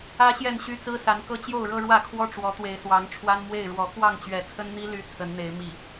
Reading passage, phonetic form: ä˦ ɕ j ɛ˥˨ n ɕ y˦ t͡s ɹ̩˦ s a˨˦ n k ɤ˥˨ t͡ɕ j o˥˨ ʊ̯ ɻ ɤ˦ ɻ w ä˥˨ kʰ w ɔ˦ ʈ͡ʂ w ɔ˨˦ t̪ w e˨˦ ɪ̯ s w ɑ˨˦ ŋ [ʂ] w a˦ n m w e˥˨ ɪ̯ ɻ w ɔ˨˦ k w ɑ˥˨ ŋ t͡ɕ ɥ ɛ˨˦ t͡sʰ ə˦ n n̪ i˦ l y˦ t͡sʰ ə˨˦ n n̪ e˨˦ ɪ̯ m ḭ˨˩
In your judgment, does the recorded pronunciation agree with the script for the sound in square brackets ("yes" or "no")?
no